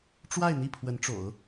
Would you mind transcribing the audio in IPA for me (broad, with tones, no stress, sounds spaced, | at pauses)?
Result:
ʈ͡ʂ w a˥˧ ɪ̯ n̪ i˥˩ pʰ w ə˧˥ n ʈ͡ʂ o̰˨˩˦ ʊ̯